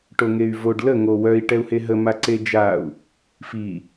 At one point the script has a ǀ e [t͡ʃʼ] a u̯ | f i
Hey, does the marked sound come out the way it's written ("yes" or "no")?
no